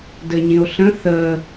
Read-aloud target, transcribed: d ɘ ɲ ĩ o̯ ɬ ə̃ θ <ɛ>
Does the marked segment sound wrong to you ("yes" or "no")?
yes